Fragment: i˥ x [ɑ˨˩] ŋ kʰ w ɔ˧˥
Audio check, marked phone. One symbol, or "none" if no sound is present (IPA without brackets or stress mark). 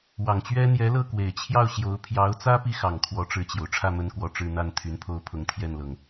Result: ɑ˨˩